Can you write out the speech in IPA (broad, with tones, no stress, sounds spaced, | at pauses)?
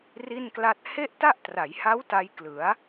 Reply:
r i˥˩ n k l a˥˩ t̚ h e˥˩ ʔ t a˥˩ ʔ t r a˩˦ j h a˦˥ w t a˦˥ j k l ɯ˩˦ a̯